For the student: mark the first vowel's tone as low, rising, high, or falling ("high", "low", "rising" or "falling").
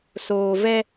low